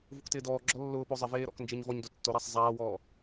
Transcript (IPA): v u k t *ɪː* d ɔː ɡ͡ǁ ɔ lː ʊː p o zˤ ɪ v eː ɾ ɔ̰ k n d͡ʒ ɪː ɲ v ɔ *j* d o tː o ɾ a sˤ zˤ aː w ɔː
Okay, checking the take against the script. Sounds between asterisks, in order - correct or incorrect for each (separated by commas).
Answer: correct, incorrect